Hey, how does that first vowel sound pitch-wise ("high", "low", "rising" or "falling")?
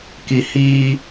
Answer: low